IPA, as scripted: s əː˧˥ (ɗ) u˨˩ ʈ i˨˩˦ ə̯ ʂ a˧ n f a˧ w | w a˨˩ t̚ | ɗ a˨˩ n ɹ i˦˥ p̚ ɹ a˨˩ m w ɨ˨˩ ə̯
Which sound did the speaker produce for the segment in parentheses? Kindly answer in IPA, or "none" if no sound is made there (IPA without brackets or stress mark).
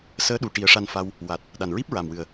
ɗ